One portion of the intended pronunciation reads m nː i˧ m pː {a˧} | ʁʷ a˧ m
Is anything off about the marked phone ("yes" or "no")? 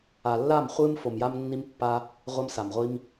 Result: no